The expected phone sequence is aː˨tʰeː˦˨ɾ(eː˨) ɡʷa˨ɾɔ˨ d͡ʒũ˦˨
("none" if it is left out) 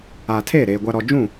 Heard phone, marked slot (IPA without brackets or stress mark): eː˨